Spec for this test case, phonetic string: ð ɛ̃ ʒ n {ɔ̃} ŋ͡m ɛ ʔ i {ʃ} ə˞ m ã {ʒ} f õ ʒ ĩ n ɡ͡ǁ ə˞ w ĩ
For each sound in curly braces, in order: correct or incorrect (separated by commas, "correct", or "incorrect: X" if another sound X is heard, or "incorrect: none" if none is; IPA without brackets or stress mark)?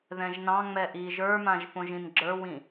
incorrect: ɑ̃, incorrect: ʒ, correct